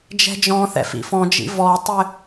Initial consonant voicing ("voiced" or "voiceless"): voiced